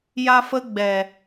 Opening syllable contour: high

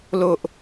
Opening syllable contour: high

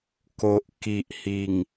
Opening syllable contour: low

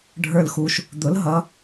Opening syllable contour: falling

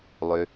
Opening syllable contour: low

